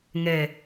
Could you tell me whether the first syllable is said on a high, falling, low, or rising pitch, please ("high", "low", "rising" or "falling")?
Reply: low